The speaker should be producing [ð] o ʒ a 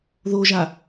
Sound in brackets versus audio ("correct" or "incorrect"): correct